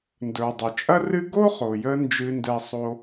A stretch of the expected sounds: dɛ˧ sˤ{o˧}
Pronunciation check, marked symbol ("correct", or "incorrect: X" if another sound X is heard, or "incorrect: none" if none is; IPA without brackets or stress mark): correct